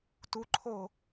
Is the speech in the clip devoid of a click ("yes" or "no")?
no